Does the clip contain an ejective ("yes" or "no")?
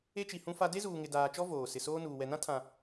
no